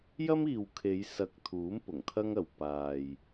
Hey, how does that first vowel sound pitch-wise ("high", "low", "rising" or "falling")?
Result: high